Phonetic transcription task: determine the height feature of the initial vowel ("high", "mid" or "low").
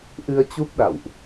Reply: high